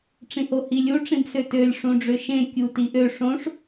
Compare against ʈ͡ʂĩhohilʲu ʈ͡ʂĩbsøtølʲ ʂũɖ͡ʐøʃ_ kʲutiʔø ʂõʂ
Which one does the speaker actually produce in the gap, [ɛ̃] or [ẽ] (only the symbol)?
ẽ